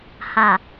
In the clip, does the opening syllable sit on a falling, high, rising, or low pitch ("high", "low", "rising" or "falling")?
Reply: low